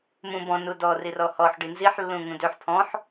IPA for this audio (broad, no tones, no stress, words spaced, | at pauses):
mũ bɔ̃ nudɔ rirɔhɔħ ɖinziħ lːũŋũdøħ pʰɔ̃ħ